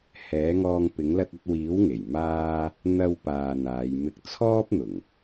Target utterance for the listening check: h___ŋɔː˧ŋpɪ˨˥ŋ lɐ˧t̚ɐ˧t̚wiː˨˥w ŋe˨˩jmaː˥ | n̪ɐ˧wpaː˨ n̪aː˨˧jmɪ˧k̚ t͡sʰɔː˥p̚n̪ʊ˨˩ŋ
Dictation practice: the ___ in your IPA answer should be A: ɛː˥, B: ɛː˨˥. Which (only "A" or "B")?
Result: B